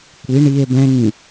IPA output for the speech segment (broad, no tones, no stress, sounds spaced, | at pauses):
kʷ i ɳ i e̯ b ɛ̃ ŋ ĩ